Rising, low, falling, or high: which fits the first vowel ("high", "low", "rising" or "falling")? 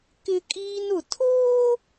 high